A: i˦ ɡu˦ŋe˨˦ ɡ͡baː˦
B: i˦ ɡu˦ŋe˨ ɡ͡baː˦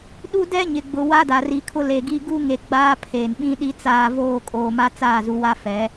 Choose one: B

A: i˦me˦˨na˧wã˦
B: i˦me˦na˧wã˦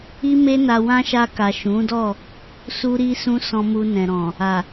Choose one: B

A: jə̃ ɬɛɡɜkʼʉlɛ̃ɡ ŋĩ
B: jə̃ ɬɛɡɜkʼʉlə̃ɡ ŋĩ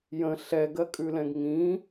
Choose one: A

